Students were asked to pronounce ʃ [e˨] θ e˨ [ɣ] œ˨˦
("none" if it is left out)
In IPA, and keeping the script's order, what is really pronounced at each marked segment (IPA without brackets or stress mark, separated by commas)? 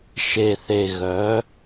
e˨, ɣ